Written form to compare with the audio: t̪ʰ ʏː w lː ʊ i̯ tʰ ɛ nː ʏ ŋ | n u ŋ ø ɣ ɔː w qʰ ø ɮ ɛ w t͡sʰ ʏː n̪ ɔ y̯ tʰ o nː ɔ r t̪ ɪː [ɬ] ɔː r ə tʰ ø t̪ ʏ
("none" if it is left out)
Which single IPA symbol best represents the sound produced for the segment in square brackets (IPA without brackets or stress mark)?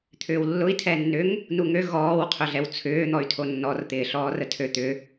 ɬ